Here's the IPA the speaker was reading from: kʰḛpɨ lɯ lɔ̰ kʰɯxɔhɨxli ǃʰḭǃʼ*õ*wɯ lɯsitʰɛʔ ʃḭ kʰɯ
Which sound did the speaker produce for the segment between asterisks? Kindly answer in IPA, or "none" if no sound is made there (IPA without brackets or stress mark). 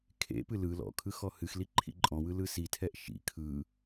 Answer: ɔ̃